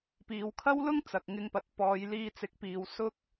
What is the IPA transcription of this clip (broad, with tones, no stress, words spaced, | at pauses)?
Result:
piː˨˧wkʰɐ˥wlʊ˥ŋ t͡sɐ˨k̚ŋɪ˧ŋpɐ˨˥t̚ pɔː˨˧jliː˧t͡sɪ˨˥k̚piː˨w sʊ˥k̚